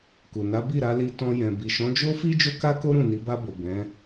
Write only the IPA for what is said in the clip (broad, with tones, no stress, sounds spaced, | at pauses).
k u˨ n a˨˦ b i˦˨ ɾ a˧ l i˧ t ɔ̃˧ j ɛ̃˨ b i˨ ʃ ɔ̃˨˦ d͡ʒ o˦ f i˦ d͡ʒ o˦ k a˦ k o˦ ɾ ũ˦˨ n i˨˦ b a˧ b o˨ b ɛ̃˨˦